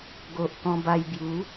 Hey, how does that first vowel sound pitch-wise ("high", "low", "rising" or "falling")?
low